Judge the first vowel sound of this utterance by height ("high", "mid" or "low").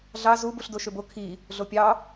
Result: low